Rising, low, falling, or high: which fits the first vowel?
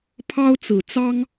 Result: high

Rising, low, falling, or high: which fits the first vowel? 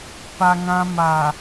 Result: low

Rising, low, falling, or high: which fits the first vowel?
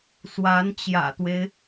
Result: rising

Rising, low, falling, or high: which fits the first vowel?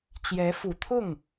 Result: rising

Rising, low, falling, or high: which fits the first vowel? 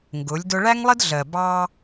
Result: rising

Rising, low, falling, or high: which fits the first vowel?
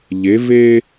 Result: rising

